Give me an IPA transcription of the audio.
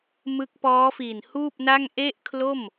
m ɯ˦˥ k̚ p ɔː˦˥ f i˨˩ n h uː˥˩ p̚ n a˥˩ ŋ ʔ e˥˩ ʔ kʰ l o˥˩ m

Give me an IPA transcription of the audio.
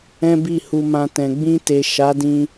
ɛ̃˦ b i˦˨ h u˧ m ã˧ t ɛ̃˨ ɡ͡b ĩ˧ t e˨ ʃ a˨˦ d ĩ˧

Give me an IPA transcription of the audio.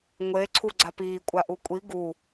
ŋʷ e ǀʰ u ɡ͡ǀ a p iː kʷʼ a ʔ u kʷʼ i ɡ u

